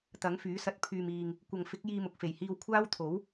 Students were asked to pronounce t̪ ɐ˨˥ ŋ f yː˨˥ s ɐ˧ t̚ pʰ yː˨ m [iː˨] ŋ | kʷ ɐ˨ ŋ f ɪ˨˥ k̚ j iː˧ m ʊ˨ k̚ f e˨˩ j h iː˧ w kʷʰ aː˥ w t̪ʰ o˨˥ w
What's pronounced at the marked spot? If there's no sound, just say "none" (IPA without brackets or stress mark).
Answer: iː˨